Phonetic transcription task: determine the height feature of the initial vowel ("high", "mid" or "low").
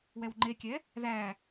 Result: mid